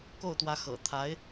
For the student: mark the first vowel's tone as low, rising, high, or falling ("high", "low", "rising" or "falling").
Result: falling